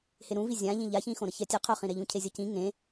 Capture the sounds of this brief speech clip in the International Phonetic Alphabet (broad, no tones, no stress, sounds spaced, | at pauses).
h e ɾ ũ v i zʲ ã ʎ ĩ ʎ a ç ĩ x õ ɾ ʌ ç ɛ tʲ ɯ qʰ o χ ĩ ɾ ɛ ʎ ũ cʰ e zʲ ʌ c ĩ ŋ ẽ